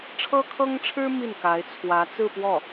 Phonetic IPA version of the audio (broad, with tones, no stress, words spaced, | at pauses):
ʈ͡ʂʰɤ˥kʰɤ˥ŋʈ͡ʂʰɻ̩˥ mi˥˩nka˧˥ɪ̯t͡sʰwä˧˥ t͡sɹ̩˥˧pwɔ˥˩